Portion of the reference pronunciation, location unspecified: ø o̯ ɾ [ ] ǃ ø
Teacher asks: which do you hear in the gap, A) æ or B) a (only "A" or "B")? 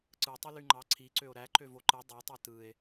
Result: A